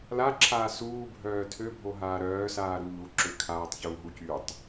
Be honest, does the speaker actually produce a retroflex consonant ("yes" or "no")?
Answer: no